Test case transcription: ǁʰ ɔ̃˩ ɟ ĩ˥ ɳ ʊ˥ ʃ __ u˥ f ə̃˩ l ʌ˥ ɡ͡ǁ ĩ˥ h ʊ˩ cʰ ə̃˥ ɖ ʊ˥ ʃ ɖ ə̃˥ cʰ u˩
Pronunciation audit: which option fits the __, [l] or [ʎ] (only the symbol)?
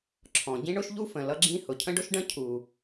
ʎ